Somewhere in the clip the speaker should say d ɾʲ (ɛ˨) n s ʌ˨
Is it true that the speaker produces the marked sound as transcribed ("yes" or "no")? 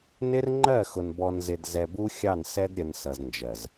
no